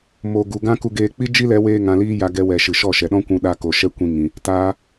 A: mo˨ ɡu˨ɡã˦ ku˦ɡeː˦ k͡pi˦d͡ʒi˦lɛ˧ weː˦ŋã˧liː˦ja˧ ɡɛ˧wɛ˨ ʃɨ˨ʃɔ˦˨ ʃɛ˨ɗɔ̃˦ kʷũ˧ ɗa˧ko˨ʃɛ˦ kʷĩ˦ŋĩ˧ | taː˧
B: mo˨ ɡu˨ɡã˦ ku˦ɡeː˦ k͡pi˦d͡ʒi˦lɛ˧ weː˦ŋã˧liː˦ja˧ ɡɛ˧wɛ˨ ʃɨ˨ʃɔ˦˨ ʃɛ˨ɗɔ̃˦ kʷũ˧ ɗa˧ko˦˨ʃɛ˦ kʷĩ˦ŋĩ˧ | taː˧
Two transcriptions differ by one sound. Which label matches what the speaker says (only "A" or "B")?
A